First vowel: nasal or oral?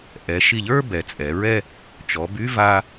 oral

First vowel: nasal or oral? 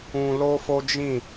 nasal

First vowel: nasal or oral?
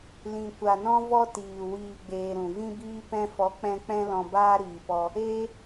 nasal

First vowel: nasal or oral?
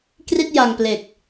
oral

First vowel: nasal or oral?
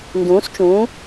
nasal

